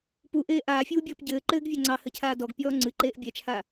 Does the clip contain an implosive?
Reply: no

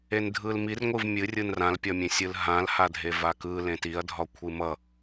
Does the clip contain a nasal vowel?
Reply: yes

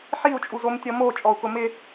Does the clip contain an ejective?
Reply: yes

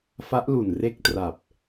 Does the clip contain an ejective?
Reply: no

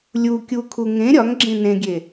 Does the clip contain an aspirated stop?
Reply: yes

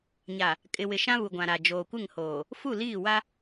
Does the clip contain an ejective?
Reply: yes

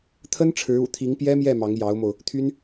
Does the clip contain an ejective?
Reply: no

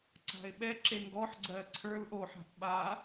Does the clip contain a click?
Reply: yes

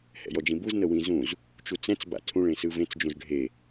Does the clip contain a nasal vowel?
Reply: yes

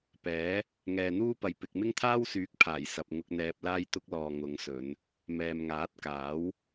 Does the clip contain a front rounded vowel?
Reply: yes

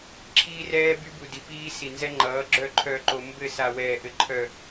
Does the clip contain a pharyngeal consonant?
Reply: no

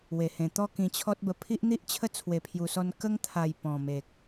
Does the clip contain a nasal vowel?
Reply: yes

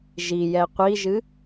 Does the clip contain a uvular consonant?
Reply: yes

